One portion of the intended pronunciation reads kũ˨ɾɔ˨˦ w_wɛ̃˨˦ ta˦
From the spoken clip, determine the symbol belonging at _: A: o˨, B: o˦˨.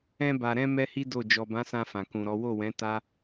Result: B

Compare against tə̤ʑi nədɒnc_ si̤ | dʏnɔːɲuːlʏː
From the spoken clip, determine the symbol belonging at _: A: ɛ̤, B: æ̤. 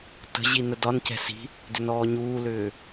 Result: A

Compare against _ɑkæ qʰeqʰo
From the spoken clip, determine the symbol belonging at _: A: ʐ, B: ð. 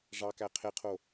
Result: A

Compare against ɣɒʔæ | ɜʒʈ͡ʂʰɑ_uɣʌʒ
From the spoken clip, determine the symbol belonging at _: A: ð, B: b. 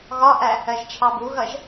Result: B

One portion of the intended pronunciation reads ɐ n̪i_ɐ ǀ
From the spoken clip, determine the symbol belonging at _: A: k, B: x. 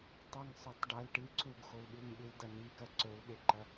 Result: A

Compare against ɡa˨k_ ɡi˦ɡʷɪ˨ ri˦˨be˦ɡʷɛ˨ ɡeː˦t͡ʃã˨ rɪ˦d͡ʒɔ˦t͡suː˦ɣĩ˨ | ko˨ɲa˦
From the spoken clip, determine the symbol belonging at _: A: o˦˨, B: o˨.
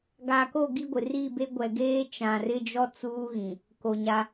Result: A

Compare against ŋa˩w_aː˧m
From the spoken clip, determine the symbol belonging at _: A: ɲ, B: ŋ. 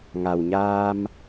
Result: A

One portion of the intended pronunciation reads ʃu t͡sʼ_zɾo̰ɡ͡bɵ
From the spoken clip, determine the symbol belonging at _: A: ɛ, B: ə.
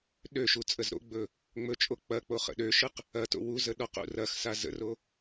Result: B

